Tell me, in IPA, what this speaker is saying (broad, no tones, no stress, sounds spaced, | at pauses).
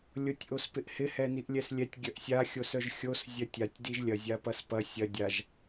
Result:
lʲ o tʲ ʔ o s p ɪ ʔ h ɪ h ɛ n i ʔ lʲ ɛ s lʲ ɛ tʲ ɡʲ œ ʔ sʲ a xʲ o s œ ʒ xʲ o s zʲ œ tʲ a tʲ d i ʒ lʲ ɐ zʲ a p ɐ s p ɐ sʲ ɐ dʲ a ʒ